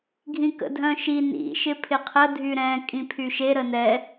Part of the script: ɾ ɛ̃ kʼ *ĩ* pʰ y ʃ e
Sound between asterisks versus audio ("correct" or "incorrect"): correct